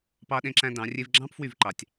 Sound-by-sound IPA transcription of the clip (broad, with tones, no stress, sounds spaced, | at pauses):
p ɑ˦ ɗ ẽ˦ ǁ æ̃˦ d ɑ̃˨˦ rʲ e˦ v ɡ͡ǁ ɑ̃˦ p f w y˦˨ v ǃ ɑ˨ tʲ